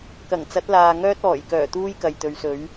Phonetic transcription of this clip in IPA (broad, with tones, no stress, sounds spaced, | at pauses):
k ɐ˨˩ ŋ t͡s ɐ˨˥ t̚ l aː˨ ŋ œː˥ t̚ ɔː˨˩ j k œː˨˩ t̪ uː˥ j k ɐ˨ j t̪ ɵ˨˧ ɥ s ɵ˨˥ ɥ